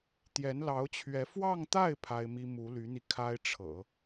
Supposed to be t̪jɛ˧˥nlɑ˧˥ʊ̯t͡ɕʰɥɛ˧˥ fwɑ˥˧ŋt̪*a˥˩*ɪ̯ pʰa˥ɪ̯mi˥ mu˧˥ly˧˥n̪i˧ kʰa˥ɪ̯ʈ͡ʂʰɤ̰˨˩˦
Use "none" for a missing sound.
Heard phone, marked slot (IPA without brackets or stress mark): a˥˩